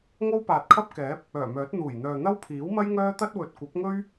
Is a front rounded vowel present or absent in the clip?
present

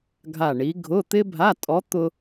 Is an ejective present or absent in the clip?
present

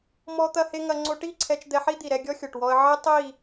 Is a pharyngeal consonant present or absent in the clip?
present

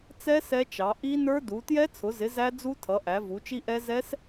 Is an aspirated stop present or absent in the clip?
present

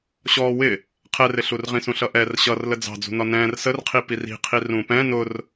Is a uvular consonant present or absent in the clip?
present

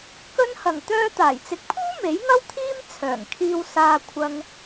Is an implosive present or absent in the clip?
absent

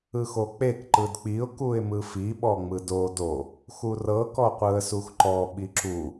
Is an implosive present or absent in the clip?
present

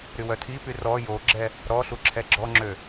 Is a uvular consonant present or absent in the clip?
absent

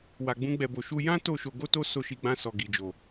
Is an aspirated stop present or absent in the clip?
absent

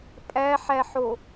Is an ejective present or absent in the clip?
present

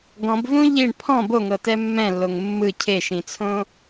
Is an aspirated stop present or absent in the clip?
present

